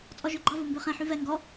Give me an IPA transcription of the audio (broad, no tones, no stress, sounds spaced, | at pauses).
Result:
t͡sʼ ɔ ʒ ø ɡ͡ǃ ɑ v o m b ø χ ɛ̃ ħ y v ɛ ŋ ɡ ɔ